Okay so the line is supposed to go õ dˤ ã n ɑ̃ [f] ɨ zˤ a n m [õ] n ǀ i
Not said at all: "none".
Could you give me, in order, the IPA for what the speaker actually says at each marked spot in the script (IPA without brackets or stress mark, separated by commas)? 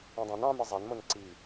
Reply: m, o